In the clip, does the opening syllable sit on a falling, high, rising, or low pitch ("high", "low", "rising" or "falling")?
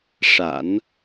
low